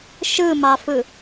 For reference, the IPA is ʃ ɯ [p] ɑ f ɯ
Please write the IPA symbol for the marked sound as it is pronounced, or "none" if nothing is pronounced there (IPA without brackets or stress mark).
m